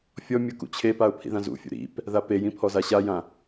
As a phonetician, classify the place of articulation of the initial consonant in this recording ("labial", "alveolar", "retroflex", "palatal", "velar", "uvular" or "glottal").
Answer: labial